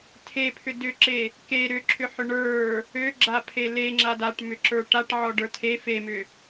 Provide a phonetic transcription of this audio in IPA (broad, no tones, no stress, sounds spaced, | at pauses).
tʰ e pʰ ʏ d ʏ ǁ e | k e ɾ ʏ ǁʰ ʏ ħ ʏ ɳ ə˞ | ø ɡ͡ǁ a pʰ e l e ŋ͡ǁ a d a ʈ m ʏ ǁ ə˞ ʈ a ʈ ʕ ɔ ɖ ə˞ tʰ e f e m ʏ